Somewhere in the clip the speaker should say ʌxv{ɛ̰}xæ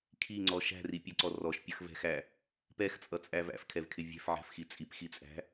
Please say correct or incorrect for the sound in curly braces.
incorrect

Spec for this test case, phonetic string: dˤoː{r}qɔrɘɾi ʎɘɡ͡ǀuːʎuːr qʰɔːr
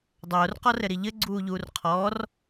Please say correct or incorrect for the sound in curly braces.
correct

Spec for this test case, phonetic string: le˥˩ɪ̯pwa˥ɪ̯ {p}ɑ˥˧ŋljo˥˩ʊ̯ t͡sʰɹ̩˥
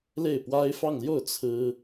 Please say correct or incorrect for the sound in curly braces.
incorrect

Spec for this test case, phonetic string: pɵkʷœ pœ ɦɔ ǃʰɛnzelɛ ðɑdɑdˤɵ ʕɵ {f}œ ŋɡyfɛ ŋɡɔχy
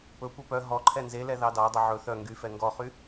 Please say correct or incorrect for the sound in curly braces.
incorrect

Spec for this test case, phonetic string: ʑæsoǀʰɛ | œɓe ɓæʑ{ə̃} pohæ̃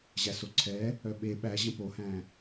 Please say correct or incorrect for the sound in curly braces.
correct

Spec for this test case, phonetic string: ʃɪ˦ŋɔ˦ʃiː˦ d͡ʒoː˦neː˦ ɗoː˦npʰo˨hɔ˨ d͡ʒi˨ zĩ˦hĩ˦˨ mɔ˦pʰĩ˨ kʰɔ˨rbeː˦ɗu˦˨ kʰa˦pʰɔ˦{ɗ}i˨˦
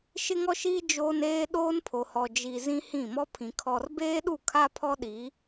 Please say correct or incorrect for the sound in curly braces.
correct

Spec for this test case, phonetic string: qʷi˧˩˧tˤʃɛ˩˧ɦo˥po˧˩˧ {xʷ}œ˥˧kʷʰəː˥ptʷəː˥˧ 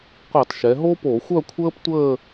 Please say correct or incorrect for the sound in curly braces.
correct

